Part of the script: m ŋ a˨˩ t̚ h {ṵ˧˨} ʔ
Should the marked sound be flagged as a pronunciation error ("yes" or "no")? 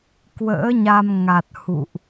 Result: no